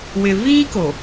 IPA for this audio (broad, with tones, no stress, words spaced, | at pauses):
wɪ˨viː˦ko˨